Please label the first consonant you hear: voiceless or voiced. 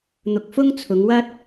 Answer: voiced